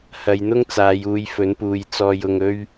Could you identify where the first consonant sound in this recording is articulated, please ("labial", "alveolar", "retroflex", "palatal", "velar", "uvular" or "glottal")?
glottal